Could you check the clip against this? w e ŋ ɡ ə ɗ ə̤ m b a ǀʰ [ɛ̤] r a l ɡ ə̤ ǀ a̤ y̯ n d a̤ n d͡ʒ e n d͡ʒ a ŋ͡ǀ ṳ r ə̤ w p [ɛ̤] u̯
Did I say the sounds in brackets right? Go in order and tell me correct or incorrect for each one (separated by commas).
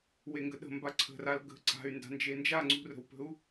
incorrect, incorrect